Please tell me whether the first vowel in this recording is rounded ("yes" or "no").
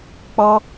yes